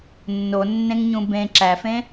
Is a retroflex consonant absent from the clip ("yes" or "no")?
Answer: yes